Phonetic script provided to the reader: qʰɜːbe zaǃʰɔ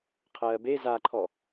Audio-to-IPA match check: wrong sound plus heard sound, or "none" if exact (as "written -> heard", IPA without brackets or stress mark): none